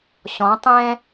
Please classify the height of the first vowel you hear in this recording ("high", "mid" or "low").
mid